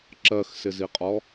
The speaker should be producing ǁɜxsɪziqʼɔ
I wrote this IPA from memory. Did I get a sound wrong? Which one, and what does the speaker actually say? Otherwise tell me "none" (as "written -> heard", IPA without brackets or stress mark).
none